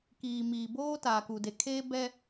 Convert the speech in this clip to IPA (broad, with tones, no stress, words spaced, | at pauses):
kiː˨miː˨ boː˦ taː˨ku˨de˨ kʰeː˦bɛ˦